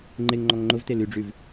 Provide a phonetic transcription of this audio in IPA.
ŋ͡ǃ e ŋ ŋ͡ǃ ɔ ŋ ŋ͡ǃ ʊ v t e l y ɖ͡ʐ y v

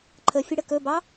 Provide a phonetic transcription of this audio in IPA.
ǃʰ ə fʲ ə ɽ ə k ɵ b ɑ

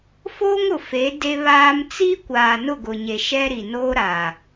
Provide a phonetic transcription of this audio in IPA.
f oː˦ ŋ ʊ˨ f e˨˦ d e˦ β aː˦ m t͡s i˦ kʷ aː˨ n ʊ˦˨ ɡ ʊ˨ ɲ e˨ ʃ ɛ˦ ɾ i˨ n oː˦ ɾ a˨

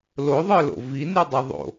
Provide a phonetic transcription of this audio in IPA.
l o ðˤ ə˞ l o̰ v i n y dˤ i ðˤ o̰

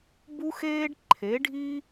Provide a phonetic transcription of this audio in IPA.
b u˦ x eː˦ ɖ ǃʰ e˨˦ ɖʱ i˦

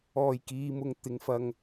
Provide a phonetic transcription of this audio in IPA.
ɔː˨˩ j k iː˨ m ʊ˨ ŋ t̪ ɪ˨˧ ŋ f ɐ˧ ŋ

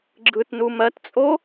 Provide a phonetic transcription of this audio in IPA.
ɡ͡ǁ ɯ t n u m ɜ t t͡sʼ o

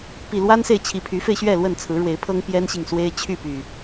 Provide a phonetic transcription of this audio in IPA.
p i˨˩ l w a˦ n s e˨ ɪ̯ t͡ɕʰ i˨˩ pʰ y˨˦ f e˧ ɪ̯ ɕ ɥ ɛ˥˨ l w ə˥˨ n t͡sʰ ɹ̩˨˦ ɻ w e˨˦ ɪ̯ pʰ ɤ˦ ŋ p j ɛ˦ n ɕ i˨ ŋ s w e˦ ɪ̯ t͡ɕʰ y˥˨ p y˨˩

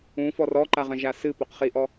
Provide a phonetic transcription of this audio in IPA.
ũ f ɔ r ɔ ǃ a ʁ ɐ̃ ʒ a s ɨ p o q χ i ʔ ɔ

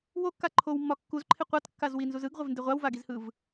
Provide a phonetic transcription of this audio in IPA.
w o kː a ǃʰ o w mː ɒ kː u z ǃʰ ɪ qʷ a t kː a z w i n z u z ɯ ɡ ʁʷ ɪ v n d ɪ ʁʷ a w v a ɡ i z h ɯ v

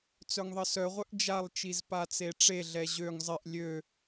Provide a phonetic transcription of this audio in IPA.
t͡s œ ŋ ðˤ ə s œ ʁʷ œ ʔ d͡ʒ a lˠ t͡ʃ i z p a t͡s e ʈ͡ʂ e ɮ ɛ ʑ ø ŋ zˤ ɪ ʔ lʲ ø

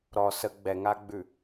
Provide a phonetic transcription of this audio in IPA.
ɾ ɔ s ə ɡ͡b ɛ ŋ a ɡ͡b ʉ

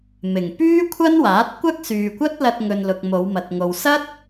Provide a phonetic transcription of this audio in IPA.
m ɪ˨˩ ŋ p yː˥ kʷʰ ɐ˥ n w aː˨˥ t̚ kʷ ɐ˥ k̚ s yː˨ kʷ ɐ˥ t̚ l ɐ˧ t̚ ŋ ɵ˨ n l ʊ˨ k̚ m o˨˧ w m ɐ˨ t̚ ŋ o˨ w s ɐ˥ t̚

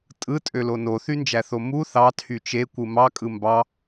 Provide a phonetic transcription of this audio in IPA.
tʼ ɯ tʼ ø l o n o θ y n d͡ʒ æ θ o m u θ ɑ tʰ y t͡ʃ e kʷ ɯ m ɑ kʼ ɯ m b ɑ

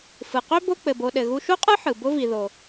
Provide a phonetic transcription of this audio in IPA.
f ɯ˩ q ø˥ b o˦ k͡p ɘ˩ b o˨ ɗ ɘ˩ ɣ u˦ ʃ u˥ qʼ ɯ˥ ħ ɯ˩ b ʊ˦ v i˩ ð o˩

